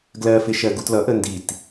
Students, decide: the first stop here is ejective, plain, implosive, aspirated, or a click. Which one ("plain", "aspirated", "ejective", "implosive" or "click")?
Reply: plain